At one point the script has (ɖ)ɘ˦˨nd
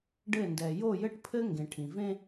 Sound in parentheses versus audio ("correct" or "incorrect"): correct